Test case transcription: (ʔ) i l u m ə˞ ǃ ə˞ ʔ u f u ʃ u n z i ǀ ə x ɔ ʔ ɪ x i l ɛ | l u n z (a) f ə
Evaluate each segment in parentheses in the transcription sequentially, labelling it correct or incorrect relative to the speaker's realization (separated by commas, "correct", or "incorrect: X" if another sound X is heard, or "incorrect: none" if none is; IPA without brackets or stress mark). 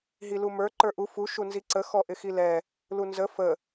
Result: incorrect: ɦ, incorrect: ə